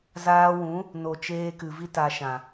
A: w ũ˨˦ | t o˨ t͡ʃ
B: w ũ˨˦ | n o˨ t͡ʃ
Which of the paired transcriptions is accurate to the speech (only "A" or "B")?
B